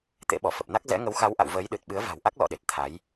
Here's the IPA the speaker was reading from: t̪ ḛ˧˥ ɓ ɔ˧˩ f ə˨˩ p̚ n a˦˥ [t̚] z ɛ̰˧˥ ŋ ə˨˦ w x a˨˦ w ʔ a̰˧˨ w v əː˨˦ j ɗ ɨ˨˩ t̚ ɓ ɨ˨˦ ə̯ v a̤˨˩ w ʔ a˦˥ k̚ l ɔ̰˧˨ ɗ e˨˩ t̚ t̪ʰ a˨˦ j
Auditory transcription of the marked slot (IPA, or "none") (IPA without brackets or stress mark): k̚